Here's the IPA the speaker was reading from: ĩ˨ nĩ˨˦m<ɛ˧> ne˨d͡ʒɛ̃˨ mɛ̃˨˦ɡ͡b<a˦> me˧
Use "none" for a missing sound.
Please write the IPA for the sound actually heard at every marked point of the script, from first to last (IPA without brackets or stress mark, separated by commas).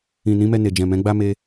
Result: ɛ˧, a˦